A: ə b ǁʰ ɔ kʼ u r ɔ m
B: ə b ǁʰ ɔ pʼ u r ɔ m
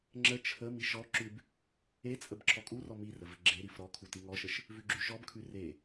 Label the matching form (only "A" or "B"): A